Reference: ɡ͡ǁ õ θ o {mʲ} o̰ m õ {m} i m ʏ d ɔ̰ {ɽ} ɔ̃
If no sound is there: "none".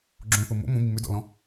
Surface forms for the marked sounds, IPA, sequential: m, m, l

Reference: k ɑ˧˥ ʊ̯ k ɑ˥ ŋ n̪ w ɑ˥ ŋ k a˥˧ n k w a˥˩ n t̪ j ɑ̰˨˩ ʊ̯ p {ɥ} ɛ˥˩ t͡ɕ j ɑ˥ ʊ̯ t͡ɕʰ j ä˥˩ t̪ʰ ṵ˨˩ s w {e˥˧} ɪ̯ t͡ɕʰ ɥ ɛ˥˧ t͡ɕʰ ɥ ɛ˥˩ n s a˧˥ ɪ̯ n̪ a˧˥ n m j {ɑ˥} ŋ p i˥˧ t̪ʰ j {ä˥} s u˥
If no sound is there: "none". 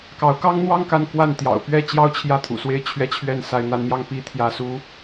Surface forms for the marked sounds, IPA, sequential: ɥ, e˥˧, ɑ˥˧, ä˥˩

